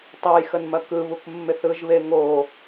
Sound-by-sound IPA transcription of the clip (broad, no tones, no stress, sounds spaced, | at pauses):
tˤ ɯ j x ə n m ɐ k ɯ β u k mː ɪ θ ɯ ʒ β e ŋ o